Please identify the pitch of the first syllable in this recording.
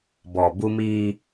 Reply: low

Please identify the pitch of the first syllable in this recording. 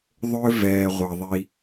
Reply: high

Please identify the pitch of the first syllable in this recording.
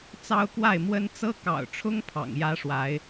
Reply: high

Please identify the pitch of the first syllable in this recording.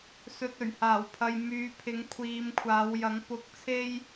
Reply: low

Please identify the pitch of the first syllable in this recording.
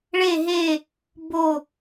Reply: falling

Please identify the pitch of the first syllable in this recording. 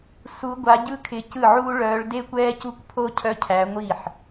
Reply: rising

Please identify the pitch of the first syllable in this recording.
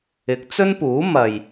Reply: rising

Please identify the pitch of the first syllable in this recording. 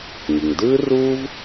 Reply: low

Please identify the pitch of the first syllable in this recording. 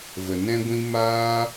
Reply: low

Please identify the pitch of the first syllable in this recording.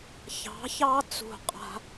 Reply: rising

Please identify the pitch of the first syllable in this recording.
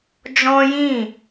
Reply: high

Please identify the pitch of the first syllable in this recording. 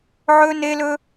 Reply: high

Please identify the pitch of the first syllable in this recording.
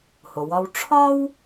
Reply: low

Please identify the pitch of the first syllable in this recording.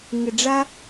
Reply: low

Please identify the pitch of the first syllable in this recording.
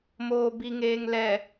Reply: low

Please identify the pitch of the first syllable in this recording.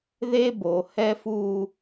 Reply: high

